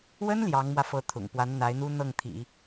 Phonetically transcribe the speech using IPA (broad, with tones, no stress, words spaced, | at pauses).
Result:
wə˥n ljɑ˧˥ŋmwä˧fɤ˧˥ t̪ʰʊ̰˨˩ŋ pwa˧˥nn̪a˧˥ɪ̯n̪u˥ n̪ɤ˥˩ŋt̪ʰḭ˨˩˦